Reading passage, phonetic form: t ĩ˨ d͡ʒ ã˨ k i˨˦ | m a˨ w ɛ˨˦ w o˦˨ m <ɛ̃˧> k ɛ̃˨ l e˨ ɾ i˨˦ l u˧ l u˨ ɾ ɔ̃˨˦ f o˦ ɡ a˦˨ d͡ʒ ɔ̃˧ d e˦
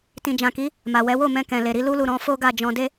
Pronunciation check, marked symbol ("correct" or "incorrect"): correct